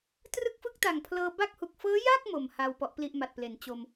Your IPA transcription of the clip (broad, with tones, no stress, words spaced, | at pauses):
trɯ˥˩k̚fɯ˥˩k̚ta˨˩ŋ pʰlɤː˧ba˥˩k̚hu˨˩k̚ fɤː˦˥ja˥˩k̚ mo˨˩mha˧w pɔ˦˥ʔpli˥˩ʔma˨˩t̚ple˨˩n t͡ɕo˧m